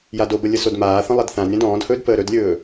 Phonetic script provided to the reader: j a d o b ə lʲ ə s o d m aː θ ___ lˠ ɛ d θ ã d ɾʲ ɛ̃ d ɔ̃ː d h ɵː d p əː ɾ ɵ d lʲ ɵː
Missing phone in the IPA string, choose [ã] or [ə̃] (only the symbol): ə̃